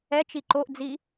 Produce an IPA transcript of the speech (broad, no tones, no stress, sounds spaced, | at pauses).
ɛ t͡ʃ i ǃ o ʔ d͡z i